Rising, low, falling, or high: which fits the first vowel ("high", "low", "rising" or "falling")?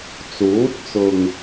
rising